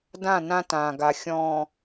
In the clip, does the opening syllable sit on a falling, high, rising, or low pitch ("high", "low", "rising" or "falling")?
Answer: falling